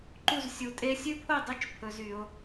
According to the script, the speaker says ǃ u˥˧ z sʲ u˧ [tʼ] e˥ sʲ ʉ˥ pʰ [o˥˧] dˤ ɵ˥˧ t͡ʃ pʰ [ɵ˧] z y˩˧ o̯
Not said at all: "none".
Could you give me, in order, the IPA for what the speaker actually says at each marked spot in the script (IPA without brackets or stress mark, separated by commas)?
tʼ, o˥˧, ɵ˧